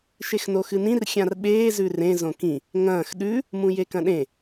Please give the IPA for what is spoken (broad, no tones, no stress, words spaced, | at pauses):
ʃexnoxɨnĩr xʲãrɓeː zʉrẽ zõkĩ | ŋɐ̃ːx ɗʉ | mũjekɐ̃ɗẽ